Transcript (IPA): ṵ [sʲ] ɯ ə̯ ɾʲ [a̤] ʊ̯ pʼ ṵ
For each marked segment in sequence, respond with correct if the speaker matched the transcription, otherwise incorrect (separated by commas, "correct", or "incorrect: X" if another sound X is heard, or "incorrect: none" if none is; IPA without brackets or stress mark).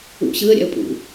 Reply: incorrect: ɕ, incorrect: a̰